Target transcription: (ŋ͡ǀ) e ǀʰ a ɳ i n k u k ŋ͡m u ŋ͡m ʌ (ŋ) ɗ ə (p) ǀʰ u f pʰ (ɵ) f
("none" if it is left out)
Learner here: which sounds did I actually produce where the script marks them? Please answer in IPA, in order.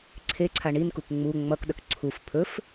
ǀʰ, k, k, ɵ

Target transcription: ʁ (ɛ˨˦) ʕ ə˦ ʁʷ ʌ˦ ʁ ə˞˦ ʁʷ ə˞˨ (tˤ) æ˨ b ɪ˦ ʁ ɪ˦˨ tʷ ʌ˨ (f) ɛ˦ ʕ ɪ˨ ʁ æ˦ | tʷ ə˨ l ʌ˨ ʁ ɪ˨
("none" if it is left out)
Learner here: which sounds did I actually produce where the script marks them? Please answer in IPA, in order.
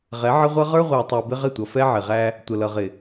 ɛ˨˦, tˤ, f

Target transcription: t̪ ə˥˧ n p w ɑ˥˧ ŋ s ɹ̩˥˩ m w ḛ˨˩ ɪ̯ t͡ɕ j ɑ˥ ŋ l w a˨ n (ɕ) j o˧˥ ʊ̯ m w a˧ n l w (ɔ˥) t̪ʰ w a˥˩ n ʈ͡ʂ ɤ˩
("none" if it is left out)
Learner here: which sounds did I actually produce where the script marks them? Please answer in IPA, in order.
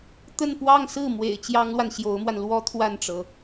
ɕ, ɔ˥

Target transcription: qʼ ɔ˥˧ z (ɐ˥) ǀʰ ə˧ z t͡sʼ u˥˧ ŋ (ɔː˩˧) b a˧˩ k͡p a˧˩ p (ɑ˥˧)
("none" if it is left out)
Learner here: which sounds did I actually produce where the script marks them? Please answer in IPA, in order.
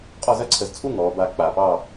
ɐ˥, ɔː˩˧, ɑ˥˧

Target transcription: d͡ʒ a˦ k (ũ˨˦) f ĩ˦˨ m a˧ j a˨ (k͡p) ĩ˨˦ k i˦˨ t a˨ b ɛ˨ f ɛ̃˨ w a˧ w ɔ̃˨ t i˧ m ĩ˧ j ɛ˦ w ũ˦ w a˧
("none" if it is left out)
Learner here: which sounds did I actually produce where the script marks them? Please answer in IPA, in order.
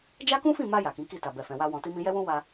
ũ˦, k

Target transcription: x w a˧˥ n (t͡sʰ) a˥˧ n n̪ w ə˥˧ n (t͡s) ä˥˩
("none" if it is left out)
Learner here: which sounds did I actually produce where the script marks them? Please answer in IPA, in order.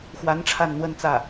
ʈ͡ʂʰ, t͡s

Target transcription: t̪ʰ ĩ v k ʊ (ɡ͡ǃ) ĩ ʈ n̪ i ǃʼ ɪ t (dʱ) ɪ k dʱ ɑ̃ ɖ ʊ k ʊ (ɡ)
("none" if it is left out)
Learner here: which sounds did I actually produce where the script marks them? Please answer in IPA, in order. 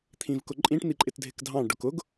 ǃʼ, dʱ, ɡ

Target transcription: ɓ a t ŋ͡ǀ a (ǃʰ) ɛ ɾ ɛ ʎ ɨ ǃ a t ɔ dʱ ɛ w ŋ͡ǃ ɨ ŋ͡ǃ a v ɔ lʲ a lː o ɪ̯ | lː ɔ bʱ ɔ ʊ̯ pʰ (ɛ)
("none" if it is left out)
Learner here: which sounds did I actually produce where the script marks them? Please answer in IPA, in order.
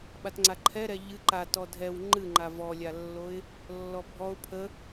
ǃʰ, ə

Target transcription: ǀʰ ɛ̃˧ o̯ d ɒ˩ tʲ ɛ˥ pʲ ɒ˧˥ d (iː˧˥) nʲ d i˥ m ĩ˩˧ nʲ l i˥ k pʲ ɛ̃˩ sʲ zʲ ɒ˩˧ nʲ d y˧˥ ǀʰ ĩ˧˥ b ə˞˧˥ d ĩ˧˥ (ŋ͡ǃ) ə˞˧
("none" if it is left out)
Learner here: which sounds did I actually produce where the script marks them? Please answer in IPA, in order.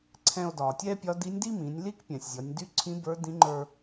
i˧˥, ŋ͡ǃ

